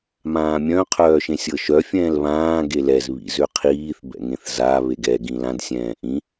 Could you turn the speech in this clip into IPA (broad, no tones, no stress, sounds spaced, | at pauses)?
m ãː mʲ œ̃ qʰ œː ʃ ẽ sʲ ɤ ʃ œ fʲ ɛ̃ː l β ãː ɡ e l ɛ z β ḭ z ø qʰ iː θ b ɛ̰ ŋ ẽ θ z a β e ɡ ɛ ɡ ĩ l ã d sʲ ɛ̃ː ʔ ĩ